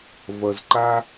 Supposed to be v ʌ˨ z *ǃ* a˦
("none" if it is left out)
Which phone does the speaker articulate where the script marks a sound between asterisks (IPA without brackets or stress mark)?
ǃ